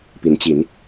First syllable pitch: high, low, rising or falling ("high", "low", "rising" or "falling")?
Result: rising